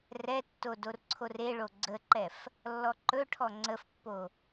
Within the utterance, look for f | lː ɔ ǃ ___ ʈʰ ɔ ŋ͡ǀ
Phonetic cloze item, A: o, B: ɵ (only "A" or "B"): B